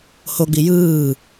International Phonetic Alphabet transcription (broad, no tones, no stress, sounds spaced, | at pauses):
h o ɡ͡b i j ɯː